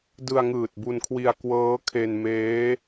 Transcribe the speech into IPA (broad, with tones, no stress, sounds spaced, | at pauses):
d ɯ˧ a̯ ŋ ɯː˨˩ t̚ b u˧ n kʰ w i˧ a̯ k w ɤː˦˥ kʰ e˧ n m eː˦˥